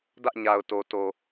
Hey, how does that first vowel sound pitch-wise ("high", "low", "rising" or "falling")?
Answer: high